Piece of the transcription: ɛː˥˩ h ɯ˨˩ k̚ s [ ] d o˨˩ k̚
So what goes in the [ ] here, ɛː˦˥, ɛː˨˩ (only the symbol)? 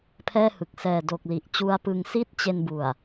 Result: ɛː˨˩